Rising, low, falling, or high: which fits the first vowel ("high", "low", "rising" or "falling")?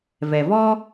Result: low